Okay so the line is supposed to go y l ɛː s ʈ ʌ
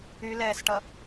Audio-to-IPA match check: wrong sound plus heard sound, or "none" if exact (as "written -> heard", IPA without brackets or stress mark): none